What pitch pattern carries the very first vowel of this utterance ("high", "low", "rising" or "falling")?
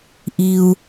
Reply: low